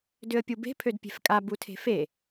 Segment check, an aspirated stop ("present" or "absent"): present